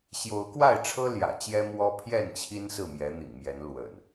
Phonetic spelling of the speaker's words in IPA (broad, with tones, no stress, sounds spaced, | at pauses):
ɕ j o˨˦ ʊ̯ k w a˥˨ ɪ̯ ʈ͡ʂʰ ɤ˦ l j ä̰˨˩ t͡ɕ j ɛ˦ m w ɔ˦ pʰ j ɛ˥˨ n t͡ɕʰ i˦ n s ɹ̩˥˨ m j ɛ˨˦ n̪ ḭ˨˩ ŋ m j ɛ˨˦ n l w ə̰˨˩ n